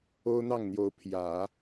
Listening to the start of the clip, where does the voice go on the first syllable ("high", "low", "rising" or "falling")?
high